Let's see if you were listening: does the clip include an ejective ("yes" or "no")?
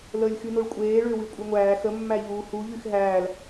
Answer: yes